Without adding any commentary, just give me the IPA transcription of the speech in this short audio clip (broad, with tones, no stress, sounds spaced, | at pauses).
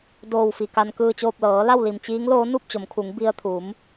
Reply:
d oː˧˩ w f i˩ k a˩ n k ɯː˧˩ t͡ɕ oː˧˩ p̚ l ɤː˩˧ l a˥˨ w l i˧˩ m t͡ɕ iː˧˥ ŋ l oː˧˥ n u˥˨ p̚ t͡ɕ o˩˧ m kʰ u˩˧ ŋ b i˧ ə̯ t̪ʰ u˩˧ m